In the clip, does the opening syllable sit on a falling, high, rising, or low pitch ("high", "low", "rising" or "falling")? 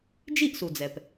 falling